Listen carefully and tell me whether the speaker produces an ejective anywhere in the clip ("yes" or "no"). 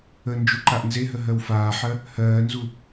no